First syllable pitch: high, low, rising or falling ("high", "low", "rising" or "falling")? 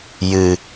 low